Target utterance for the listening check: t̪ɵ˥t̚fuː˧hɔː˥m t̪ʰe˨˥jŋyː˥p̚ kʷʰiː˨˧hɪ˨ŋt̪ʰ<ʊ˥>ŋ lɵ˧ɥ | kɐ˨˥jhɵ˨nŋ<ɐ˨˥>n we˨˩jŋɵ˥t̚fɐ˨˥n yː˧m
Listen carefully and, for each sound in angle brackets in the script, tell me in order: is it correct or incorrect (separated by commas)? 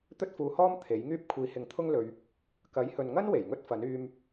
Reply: correct, incorrect